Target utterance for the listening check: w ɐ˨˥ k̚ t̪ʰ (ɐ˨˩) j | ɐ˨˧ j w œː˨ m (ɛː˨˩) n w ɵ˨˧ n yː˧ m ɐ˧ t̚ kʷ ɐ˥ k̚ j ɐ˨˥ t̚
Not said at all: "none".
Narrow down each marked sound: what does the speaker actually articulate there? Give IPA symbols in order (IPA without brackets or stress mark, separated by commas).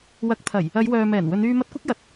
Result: ɐ˨˩, ɛː˨˩